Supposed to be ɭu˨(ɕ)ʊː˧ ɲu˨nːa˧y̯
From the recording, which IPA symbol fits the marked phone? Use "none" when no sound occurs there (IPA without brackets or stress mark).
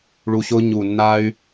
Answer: ɕ